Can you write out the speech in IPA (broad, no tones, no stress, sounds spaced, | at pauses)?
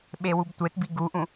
ɓ e w u b tʷ e t b i ɡ u ʔ ũ